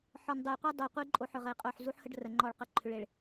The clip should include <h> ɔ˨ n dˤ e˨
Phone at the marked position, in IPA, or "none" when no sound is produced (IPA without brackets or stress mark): ħ